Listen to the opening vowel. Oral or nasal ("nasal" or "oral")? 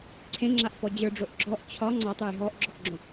nasal